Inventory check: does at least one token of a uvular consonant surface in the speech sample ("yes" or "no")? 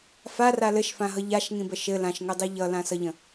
no